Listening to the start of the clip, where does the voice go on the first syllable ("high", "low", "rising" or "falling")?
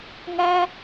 high